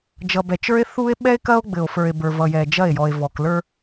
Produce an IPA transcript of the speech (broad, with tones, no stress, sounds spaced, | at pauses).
d͡ʒ ʌ˨ b ɛ˨ t͡ʃ ə˞˦ e̯ θ u˦ e̯ ɓ ɛ˦ e̯ k ɐ˦ o̯ ɡ͡b ɘ˨ o̯ f ə˞˨ e̯ b ə˞˨ v ʌ˨ j ɛ˨ d͡ʒ ɐ˦˨ e̯ j ɔ˨ e̯ v ɔ˨ k l ə˞˦